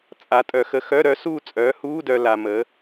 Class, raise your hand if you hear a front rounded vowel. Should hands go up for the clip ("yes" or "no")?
yes